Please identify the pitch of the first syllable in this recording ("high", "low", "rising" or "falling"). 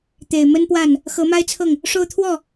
low